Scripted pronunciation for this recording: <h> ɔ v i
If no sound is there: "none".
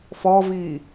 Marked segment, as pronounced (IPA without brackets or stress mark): f